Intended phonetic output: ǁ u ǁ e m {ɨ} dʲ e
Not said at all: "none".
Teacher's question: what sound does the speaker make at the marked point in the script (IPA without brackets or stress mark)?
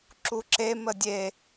ə